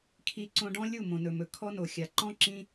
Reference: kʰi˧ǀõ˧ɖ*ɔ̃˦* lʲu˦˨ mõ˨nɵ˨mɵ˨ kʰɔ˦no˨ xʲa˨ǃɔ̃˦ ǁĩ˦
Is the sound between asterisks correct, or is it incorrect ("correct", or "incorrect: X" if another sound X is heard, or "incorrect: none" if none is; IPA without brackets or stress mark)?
correct